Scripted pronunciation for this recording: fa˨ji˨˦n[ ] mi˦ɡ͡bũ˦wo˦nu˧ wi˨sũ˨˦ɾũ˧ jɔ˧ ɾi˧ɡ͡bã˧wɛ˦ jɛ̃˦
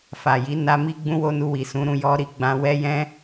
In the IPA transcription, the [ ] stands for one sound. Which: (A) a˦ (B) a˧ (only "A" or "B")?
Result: B